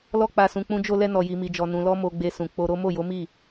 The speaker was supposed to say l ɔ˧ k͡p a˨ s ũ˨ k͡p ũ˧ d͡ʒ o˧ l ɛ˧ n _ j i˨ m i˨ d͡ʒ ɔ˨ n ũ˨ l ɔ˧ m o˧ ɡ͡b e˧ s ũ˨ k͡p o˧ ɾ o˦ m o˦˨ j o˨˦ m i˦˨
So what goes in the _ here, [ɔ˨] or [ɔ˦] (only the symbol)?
ɔ˨